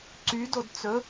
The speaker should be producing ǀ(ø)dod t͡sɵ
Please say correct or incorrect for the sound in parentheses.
incorrect